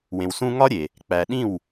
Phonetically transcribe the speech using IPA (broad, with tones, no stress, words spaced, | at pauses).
wẽ˨wsũ˦ ŋɒ˦ɾʲe˨ | k͡pæ˨ ɗĩ˦˨w